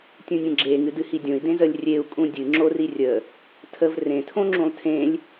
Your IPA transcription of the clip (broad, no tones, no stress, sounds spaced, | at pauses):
tʲ ũ nʲ ə̃ ɡ͡ǁ e ŋ ɨ d ɨ h i dʲ õ i̯ d ẽ z ə lʲ rʲ e u̯ kʼ ũ dʲ ɨ ŋ͡ǁ o r i rʲ ə | tʰ ə v r ẽ tʰ õ ŋ͡ǁ ũ lˠ tʰ ẽ lʲ